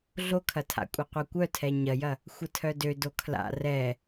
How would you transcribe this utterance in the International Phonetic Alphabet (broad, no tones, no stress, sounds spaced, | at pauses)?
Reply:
ɮ o kʰ ɐ tʰ a̰ kʷʼ ɐ qʷ œ kʷ œ tʰ ɛ ɲ ɐ j ɐ | xʷ ə tʰ œ d ø d o kʰ l a̰ r ɛ